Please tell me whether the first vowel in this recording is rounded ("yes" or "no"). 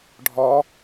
yes